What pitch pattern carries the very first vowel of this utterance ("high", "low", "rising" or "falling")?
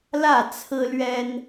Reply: falling